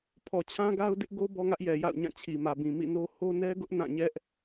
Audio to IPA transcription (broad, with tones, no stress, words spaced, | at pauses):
pʰɔ˨t͡ɕʰã˦ɡa˦ʊ̯ dɪ˦ʔɡo˦ bɔ˦ŋä˦ʔjɛ˨ ja̰˦˨ʊ̯ɲã˦˨t͡ɕʰi˨ mä˨bĩ˨mḭ˦˨ no˦ ho˦nɛ˦ɡʊ˦ʔ nã˦˨ɲɛ˦ʔ